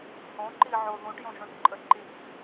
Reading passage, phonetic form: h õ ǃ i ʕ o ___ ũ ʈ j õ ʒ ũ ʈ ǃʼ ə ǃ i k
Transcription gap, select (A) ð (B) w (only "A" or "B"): A